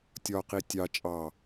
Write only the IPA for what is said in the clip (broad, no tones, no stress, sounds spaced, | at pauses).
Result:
tʲ ɒ q i tʲ ɑ t͡ʃʼ ɑ